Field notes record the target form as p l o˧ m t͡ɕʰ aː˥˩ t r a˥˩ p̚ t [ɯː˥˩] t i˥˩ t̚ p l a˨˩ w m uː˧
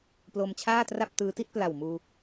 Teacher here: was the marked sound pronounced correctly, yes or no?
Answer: no